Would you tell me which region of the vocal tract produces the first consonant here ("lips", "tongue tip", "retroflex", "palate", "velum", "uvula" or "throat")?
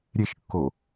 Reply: tongue tip